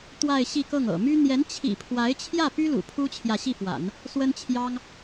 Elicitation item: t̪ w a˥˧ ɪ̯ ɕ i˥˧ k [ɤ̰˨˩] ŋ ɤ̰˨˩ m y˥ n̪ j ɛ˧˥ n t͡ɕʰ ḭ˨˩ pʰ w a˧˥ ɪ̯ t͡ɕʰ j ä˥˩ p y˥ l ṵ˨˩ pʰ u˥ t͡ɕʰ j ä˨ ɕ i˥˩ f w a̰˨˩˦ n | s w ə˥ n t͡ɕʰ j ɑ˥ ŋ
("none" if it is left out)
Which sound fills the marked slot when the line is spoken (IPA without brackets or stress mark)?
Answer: ɤ˥˩